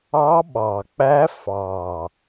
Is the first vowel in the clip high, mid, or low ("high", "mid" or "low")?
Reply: low